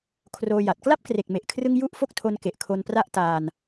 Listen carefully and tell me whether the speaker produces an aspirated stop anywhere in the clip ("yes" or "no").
yes